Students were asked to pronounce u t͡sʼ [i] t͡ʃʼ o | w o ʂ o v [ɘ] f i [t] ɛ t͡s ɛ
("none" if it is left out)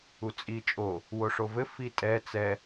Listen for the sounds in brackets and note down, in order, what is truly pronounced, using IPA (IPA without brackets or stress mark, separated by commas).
i, ɘ, tʼ